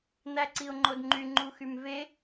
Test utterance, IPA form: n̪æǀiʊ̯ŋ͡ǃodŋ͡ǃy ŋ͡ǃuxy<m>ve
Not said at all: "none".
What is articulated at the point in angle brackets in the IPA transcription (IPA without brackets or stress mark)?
m